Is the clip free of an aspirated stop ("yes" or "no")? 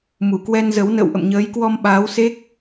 yes